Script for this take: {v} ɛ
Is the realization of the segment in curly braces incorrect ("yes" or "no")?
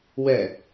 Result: yes